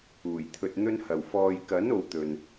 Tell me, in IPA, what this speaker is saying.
uː˨˩ j t̪ʰ ɵ˧ t̚ n̪ ɵ˥ n h ɐ˨˩ w f ɔː˨ j k ɐ˨˥ n o˧ w t̪ ɵ˨ n

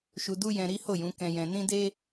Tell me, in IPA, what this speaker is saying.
ʃ u˧ d u˦ j ɛ̃˧ ɾ i˦ h o˦˨ j ũ˨˦ k ɛ̃˧ j ɛ̃˧ n ĩ˦ d e˦

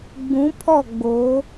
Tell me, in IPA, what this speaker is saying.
ɡ͡b ũ˨˦ pʰ ɔ˦˨ ɡ͡b o˨˦

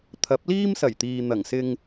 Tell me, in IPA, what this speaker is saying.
t̪ʰ ɐ˨˥ p̚ l iː˥ m s ɐ˨˩ j t̪ iː˨ n̪ ɐ˨˩ ŋ s ɪ˧ ŋ

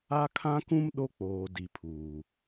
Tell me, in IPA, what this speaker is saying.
a˦ kʰ ã˦ k ũ˦ m ɗ o˦ k͡p oː˨ d i˨ pʰ uː˨

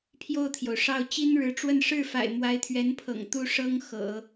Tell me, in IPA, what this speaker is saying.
pʰ j o˥˩ ʊ̯ t̪ʰ j o˩ ʊ̯ ʂ ɑ˥˩ ʊ̯ t͡ɕ i˥ n ɻ ɻ̩˧˥ ʈ͡ʂ w ə˥˧ n ʂ ɻ̩˥˩ f a̰˨˩ ɪ̯ m w a˧˥ ɪ̯ t̪ʰ ɥ ɛ˧˥ n pʰ ɤ̰˨˩ ŋ t̪ u˥˩ ʂ ɤ˥ ŋ x ɤ̰˨˩˦

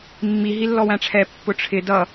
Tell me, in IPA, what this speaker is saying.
mː i ɦ i lː ɔ w æ̃ ʈ͡ʂʰ ɛ pː ʊ ʈ͡ʂʰ ɪ d ʌ

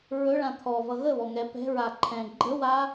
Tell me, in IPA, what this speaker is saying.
ɹ ɵ ɭ ã t̪ʰ ɔ v ʌ ɣ ə β ɔ ŋ ɛ p ɛ̤ ɹ a ǃʰ ɛ̃ ɡ͡ǃ ə w a

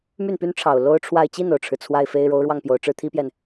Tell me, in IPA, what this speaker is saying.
m y˥˩ n p y˥ n ʈ͡ʂʰ ɑ˨˩ ʊ̯ l o˥ ʊ̯ ʈ͡ʂʰ w a˥˧ ɪ̯ t͡ɕ i˥˩ n o˩ ʊ̯ ʈ͡ʂʰ ɻ̩˩ t͡sʰ w a˥˩ ɪ̯ f e˥ ɪ̯ ɻ o˧˥ ʊ̯ ɻ w ɑ˥˩ ŋ p j o˨˩ ʊ̯ ʈ͡ʂ ɻ̩˥˩ t̪ʰ i˥ p j ɛ˨ n

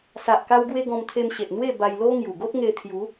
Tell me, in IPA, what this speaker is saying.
s a˨ ʔ k a˧ w ɡ w e˧ ɡ ɔ̃˧ m t̪ʰ e˧ m ɕ e˨ ʔ n̪ w e˥˧ b a˧ j l o˧ ŋ j u˨˩ ɡ o˦ t̚ ŋ e˧ t̪ʰ j u˨˦

